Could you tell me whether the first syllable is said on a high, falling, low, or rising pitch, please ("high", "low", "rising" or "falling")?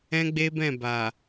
high